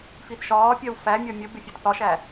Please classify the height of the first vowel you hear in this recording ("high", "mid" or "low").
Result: high